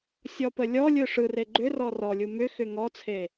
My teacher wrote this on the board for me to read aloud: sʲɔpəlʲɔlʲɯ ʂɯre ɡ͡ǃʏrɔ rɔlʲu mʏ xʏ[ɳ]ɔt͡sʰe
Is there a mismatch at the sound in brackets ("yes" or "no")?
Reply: yes